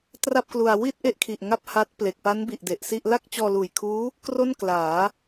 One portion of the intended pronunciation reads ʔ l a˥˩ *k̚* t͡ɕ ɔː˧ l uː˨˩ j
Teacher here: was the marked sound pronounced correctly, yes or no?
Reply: yes